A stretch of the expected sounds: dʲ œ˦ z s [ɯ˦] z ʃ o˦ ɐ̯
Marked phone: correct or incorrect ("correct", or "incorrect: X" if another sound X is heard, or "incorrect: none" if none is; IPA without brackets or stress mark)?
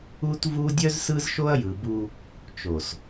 correct